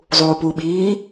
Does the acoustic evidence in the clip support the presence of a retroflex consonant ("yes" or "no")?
no